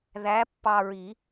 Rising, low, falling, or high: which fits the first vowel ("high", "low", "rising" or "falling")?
rising